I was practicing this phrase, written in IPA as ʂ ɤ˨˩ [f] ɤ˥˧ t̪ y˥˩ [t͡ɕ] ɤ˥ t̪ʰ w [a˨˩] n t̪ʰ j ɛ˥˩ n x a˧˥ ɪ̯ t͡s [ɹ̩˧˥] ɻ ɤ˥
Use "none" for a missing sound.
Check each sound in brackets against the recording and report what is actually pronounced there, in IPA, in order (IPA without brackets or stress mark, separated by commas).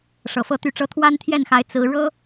f, ʈ͡ʂ, a˥, ɹ̩˧˥